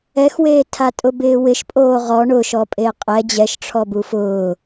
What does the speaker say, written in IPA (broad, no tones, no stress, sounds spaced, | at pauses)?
ɛ x w eː tʰ a tʼ ʊ b ɪː w ɪ ʃ pʼ oː ʁ ɔ ɳ ʊ ʃ ɔ pʼ e qʼ ɛ d͡ʑ ɛ ʃ ʈ͡ʂʰ ɔ b u f ʊː